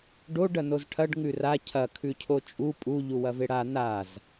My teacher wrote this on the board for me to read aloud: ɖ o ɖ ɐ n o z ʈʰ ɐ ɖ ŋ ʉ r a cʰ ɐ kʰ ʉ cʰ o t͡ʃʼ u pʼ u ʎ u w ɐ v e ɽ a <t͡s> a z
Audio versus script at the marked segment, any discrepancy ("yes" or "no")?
yes